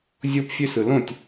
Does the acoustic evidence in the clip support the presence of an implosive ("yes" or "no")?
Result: no